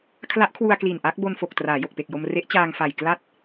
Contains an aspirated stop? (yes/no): yes